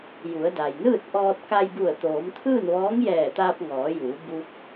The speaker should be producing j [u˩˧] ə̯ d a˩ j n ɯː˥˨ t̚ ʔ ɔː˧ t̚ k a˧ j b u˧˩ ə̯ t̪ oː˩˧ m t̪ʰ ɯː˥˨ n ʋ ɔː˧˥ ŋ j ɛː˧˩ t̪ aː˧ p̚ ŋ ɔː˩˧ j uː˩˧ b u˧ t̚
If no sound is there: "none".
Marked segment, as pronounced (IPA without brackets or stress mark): u˩˧